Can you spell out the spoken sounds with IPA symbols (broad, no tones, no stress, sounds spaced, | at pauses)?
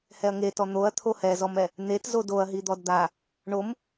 h ɛ ɐ̯ ŋ e t ɔ n̪ o ɐ̯ t̪ʰ o h ɛ z ɔ m ɛ | n̪ e t z o d o ɐ̯ ɦ i d̪ ɔ d d̪ a | ɳ o m